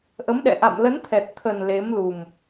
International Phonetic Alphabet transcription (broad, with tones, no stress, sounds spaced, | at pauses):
ʔ ə˨˦ m ɗ ɛ̰˧˨ ʔ a̰˧˨ m l ə˨˦ n t̪ʰ ɛ˨˩ t̚ t̪ʰ ə˨˩ n l e˨˦ m l u˨˩ m